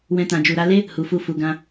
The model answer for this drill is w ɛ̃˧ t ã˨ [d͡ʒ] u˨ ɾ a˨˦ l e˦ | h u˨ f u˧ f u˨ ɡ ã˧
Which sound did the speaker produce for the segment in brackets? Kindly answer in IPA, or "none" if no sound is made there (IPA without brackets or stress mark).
d͡ʒ